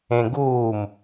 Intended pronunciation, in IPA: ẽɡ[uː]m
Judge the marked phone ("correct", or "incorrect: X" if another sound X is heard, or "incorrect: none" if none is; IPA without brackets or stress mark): correct